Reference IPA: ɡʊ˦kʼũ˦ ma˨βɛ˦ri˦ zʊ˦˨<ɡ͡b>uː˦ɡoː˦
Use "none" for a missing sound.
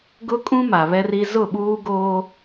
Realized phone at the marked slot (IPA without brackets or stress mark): ɓ